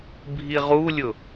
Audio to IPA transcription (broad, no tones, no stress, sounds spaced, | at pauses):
bʱ i ʁ u lʲ ʊ